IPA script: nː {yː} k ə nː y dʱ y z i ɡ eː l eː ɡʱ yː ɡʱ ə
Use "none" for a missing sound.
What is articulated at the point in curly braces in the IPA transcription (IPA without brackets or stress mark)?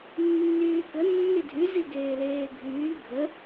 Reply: yː